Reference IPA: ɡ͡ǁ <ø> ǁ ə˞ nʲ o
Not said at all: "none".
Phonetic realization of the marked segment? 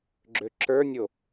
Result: ø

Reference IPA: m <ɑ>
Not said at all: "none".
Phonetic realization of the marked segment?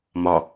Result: ɒ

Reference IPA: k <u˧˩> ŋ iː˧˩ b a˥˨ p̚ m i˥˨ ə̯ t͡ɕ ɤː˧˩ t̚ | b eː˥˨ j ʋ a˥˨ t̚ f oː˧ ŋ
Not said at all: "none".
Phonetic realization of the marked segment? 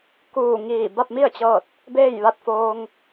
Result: uː˧˩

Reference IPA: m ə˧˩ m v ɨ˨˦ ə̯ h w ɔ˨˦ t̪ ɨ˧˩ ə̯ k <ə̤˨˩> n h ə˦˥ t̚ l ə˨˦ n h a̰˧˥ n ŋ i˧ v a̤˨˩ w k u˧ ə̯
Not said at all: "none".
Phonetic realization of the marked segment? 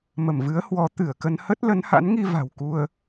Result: ə˧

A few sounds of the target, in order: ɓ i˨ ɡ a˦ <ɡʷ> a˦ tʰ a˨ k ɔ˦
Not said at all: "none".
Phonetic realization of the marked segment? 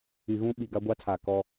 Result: ɡʷ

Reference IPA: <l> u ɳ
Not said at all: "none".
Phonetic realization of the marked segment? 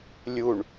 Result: lʲ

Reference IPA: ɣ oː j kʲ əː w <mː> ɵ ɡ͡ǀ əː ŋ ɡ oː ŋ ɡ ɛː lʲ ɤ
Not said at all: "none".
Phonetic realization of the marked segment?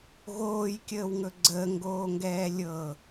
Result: ŋ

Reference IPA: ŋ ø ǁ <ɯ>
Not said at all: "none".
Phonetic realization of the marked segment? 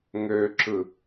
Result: ɯ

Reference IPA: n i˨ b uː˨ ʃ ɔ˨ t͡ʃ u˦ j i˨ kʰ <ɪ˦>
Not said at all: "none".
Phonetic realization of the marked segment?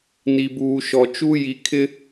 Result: ɪ˦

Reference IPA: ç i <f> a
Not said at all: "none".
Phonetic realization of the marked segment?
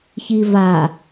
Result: v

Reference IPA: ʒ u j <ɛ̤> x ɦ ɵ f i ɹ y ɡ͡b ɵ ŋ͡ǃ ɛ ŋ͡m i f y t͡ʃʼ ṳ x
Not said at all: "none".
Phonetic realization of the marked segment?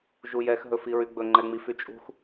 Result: ɛ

